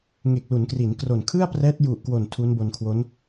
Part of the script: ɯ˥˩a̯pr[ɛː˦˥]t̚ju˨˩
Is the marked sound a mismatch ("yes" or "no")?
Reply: no